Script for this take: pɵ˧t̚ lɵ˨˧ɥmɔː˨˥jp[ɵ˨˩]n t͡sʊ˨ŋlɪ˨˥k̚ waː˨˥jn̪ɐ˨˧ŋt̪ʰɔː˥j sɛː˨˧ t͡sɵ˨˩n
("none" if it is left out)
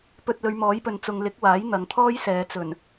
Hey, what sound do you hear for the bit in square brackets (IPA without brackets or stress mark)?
ɵ˨